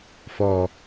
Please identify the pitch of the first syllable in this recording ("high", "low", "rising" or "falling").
high